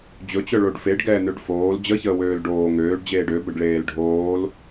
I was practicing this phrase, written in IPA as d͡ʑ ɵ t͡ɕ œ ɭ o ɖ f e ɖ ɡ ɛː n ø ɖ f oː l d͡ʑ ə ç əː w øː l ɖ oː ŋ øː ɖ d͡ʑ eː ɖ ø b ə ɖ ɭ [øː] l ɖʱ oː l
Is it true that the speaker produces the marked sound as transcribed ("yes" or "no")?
no